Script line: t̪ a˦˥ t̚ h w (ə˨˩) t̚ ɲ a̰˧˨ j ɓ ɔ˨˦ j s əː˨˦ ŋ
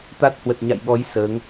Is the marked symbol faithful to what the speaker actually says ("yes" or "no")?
yes